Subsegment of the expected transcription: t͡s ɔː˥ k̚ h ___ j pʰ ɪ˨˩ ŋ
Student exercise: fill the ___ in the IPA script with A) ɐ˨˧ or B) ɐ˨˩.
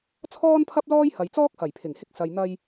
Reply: B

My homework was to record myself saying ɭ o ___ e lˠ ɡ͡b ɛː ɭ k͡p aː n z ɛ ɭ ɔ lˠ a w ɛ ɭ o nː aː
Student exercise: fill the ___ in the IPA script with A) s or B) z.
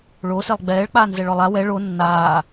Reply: A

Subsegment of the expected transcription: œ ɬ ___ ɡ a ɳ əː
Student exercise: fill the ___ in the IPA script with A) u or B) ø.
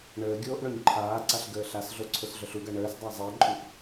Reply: A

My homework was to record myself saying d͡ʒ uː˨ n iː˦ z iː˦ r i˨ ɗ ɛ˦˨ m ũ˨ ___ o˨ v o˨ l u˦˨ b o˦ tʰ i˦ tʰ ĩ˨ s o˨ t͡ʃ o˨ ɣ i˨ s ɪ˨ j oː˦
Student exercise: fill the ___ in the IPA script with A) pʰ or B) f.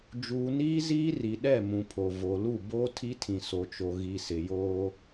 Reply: A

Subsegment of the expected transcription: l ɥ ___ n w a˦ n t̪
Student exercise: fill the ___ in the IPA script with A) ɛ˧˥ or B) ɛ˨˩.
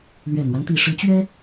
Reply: B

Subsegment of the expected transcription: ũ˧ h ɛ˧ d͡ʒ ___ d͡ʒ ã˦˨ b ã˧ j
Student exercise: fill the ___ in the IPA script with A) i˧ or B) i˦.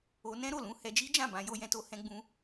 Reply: B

